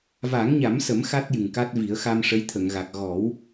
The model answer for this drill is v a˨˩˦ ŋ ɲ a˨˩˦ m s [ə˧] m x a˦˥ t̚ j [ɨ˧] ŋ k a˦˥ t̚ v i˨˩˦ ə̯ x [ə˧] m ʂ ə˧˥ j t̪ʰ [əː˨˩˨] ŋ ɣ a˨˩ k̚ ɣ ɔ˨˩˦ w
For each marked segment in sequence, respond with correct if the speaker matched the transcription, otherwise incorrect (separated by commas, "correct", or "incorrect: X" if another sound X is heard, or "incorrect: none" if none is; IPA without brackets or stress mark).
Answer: incorrect: ə˨˩˦, incorrect: ɨ˨˩, incorrect: a˧, incorrect: ə˨˩˨